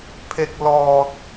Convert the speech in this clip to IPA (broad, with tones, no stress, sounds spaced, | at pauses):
pʰ e˨˩ k̚ l ɔː˨˩ t̚